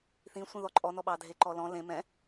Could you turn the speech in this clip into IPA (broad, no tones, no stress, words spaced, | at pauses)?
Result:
θĩsʷĩðɔ ǃʼɔnɔ ɓɑdʱeǃɔlɔ̃ lẽ mɛ̃